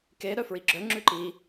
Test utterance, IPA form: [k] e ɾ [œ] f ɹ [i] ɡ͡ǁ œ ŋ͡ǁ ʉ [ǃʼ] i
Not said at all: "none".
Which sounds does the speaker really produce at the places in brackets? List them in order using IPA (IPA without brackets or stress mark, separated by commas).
k, œ, i, ǃ